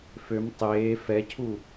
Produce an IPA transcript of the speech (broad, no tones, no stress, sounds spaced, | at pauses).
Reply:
f ø m tˤ eː f ɛ cʰ u